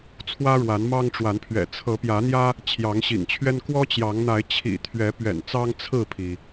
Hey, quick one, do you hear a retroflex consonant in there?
yes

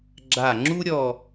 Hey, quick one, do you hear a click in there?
yes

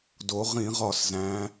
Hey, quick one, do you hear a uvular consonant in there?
yes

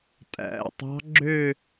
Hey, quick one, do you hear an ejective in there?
yes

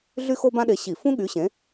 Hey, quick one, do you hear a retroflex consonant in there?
no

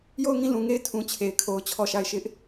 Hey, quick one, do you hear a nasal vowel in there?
yes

